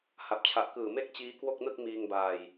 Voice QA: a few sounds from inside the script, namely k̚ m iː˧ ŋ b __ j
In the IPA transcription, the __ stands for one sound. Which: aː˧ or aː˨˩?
aː˧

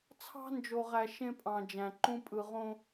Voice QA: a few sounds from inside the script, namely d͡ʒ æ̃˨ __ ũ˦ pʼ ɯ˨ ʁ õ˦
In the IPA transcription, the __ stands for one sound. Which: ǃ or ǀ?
ǃ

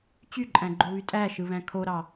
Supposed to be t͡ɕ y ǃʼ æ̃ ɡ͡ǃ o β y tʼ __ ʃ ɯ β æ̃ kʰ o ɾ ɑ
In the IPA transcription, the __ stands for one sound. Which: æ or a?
æ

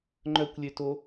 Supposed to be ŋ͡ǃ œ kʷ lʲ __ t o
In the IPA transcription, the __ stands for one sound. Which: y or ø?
ø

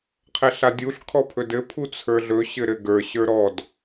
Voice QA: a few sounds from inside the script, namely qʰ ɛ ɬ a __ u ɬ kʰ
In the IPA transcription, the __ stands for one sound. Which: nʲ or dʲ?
dʲ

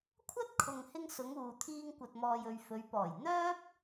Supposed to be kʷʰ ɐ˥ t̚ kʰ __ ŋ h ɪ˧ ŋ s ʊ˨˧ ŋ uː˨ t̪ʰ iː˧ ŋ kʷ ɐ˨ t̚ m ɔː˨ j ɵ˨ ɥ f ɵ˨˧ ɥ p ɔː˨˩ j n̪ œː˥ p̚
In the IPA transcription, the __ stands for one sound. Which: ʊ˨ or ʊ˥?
ʊ˨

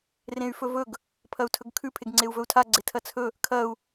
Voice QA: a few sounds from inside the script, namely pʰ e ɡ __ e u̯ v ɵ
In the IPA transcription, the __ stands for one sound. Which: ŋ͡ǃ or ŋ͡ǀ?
ŋ͡ǀ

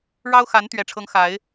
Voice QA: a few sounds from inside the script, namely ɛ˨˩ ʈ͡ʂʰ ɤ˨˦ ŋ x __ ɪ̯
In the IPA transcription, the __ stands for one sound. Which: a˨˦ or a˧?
a˨˦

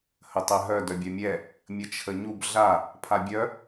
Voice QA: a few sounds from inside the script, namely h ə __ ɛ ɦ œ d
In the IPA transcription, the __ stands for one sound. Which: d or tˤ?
tˤ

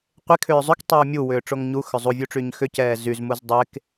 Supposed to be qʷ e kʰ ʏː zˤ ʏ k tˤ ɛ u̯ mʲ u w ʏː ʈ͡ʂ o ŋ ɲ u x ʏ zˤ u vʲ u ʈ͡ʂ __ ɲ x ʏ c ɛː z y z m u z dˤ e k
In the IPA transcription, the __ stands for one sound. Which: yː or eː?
yː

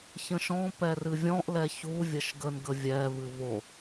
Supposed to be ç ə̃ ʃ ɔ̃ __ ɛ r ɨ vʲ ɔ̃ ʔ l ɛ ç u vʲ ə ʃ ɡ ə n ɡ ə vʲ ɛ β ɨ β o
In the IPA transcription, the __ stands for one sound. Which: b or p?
p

